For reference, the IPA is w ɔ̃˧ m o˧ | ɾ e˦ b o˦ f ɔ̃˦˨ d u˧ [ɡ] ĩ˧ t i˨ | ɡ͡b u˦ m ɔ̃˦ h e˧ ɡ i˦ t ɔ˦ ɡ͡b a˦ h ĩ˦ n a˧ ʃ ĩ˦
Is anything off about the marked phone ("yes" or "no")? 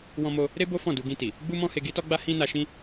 no